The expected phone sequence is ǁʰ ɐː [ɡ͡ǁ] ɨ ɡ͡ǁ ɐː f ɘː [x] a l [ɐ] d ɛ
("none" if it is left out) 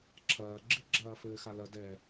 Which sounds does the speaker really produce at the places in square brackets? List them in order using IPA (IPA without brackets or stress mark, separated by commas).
ɡ͡ǁ, x, ɐ